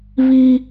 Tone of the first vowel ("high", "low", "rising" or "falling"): high